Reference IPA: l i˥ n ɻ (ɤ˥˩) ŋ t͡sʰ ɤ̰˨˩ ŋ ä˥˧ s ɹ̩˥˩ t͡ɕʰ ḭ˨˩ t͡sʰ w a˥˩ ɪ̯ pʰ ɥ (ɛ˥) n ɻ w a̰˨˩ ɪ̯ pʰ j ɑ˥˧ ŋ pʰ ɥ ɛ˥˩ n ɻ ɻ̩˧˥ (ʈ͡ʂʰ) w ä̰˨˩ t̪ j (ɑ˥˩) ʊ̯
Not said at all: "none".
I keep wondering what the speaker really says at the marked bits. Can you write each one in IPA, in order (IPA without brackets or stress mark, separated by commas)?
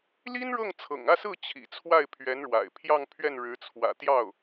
ɤ˥˩, ɛ˧˥, t͡sʰ, ɑ˥˩